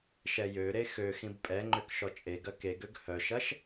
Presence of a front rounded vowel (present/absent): present